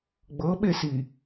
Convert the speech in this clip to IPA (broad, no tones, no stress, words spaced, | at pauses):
ɡ͡bɤɓesi